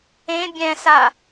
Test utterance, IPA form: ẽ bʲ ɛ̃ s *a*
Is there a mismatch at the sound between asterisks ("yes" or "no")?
no